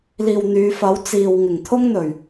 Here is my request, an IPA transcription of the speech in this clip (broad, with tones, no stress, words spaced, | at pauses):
liː˨wn̪yː˨˧fɐ˨˥w t͡siː˨w ŋɪ˨˩ŋt̪ʰʊ˥ŋn̪ɵ˨˩ɥ